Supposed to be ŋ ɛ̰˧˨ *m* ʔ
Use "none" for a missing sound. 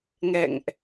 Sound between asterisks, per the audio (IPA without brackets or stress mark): ŋ